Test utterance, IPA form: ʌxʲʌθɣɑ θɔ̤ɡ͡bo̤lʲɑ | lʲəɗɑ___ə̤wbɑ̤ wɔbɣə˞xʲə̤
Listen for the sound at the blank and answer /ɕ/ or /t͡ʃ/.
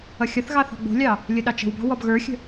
t͡ʃ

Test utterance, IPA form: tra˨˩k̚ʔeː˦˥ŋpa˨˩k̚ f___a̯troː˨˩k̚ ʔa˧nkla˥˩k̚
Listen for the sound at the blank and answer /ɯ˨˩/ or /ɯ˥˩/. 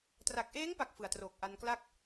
ɯ˨˩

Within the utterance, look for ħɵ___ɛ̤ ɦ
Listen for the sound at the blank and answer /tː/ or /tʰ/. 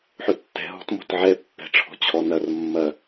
tː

